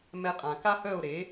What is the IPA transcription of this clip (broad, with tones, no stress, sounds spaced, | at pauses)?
m ɛ˧ qʼ ã˩ k a˥ h œ˥˩ o̯ ɾ e˩˥